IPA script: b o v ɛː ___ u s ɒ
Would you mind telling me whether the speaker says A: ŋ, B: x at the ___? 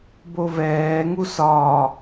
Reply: A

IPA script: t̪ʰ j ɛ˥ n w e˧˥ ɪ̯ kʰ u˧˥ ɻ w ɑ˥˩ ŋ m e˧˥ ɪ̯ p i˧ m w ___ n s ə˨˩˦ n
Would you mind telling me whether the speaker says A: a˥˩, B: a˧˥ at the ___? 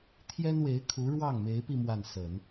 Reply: A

